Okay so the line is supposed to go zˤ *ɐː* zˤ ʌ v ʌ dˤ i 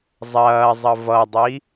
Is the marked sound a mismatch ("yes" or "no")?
no